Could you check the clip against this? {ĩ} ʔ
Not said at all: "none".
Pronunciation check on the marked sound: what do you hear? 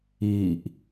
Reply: i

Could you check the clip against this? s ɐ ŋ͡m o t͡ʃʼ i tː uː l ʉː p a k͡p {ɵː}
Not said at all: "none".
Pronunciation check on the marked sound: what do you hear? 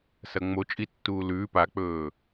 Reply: ɵː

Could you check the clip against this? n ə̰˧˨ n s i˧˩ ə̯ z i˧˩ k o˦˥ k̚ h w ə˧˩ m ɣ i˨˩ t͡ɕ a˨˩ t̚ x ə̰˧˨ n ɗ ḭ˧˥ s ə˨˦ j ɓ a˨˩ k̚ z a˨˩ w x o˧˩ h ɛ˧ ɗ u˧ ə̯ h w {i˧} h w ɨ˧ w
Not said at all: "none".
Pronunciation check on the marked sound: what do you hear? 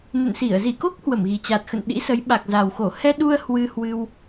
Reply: ɨ˧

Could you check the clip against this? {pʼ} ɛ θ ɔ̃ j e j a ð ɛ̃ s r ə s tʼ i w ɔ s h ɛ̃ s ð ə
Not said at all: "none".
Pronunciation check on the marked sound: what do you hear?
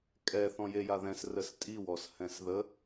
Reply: kʼ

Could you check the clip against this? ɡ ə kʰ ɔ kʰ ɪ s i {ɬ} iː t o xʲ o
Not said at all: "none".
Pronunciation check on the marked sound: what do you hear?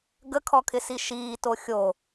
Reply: ʃ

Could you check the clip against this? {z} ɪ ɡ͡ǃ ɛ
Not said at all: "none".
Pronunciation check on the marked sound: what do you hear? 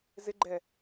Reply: z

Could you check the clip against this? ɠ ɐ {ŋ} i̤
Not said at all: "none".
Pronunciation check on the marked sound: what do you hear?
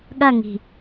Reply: ŋ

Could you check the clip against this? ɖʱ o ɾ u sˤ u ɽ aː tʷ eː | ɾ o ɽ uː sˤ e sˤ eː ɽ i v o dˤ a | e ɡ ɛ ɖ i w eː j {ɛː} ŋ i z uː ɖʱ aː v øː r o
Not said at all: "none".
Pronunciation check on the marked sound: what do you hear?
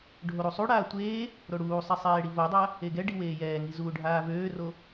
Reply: ɛː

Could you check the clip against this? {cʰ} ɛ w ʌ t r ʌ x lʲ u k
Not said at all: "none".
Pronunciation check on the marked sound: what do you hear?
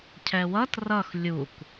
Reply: cʰ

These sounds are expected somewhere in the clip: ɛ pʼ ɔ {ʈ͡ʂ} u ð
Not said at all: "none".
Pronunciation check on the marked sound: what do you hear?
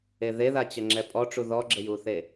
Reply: ʈ͡ʂ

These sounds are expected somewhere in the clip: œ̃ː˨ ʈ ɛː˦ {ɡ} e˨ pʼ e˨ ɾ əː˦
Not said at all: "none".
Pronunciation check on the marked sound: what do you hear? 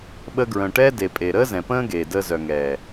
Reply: d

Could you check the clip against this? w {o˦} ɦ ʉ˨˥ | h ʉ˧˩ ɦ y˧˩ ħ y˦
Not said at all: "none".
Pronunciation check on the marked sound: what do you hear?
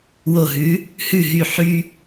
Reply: o˧˩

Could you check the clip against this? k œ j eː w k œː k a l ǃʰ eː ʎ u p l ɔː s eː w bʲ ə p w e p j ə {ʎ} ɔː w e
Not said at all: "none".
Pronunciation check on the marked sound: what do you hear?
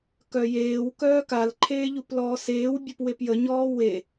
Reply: ɲ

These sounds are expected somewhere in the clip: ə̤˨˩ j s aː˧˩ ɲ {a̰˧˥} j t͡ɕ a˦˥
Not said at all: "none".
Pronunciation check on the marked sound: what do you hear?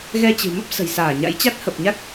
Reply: a̰˧˥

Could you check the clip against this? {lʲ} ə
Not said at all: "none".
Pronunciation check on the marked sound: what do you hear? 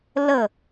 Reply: l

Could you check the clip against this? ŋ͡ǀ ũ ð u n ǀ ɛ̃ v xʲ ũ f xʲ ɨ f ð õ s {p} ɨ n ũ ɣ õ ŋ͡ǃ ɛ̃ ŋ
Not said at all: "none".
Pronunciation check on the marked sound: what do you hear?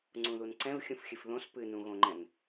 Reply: p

